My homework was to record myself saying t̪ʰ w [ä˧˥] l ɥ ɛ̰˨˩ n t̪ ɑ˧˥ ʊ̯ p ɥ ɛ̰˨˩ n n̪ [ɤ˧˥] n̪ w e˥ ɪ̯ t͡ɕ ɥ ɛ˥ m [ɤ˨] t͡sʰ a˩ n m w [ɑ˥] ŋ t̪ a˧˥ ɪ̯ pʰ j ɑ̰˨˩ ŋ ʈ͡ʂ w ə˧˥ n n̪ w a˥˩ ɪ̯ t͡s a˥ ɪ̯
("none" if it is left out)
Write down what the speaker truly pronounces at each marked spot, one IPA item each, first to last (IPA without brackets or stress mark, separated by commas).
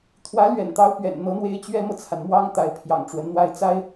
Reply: ä˧˥, ɤ˧˥, ɤ˨, ɑ˥